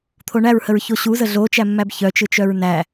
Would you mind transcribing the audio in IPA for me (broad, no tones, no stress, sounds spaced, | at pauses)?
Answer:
t̪ʰ o ɳ æ ɹ h ə ɹ ç o ɕ u z ə ɮ o t͡ʃ æ mː æ b ç œ t͡ʃ ɯ t͡ʃ œ ɹ n æ